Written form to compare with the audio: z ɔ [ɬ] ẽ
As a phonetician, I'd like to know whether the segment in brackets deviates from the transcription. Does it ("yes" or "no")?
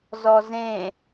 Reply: yes